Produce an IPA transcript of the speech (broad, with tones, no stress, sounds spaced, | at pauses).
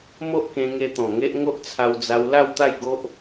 m o˦ ʔ k ẽ˧ ŋ e˧ t̪ ɔ̃˨˩ ŋ e˦ ʔ ŋ o˦ ʔ t͡sʰ a˧ w d͡z a˧ w l a˥˧ w t̪ a˥˧ j ɡ o˦ ʔ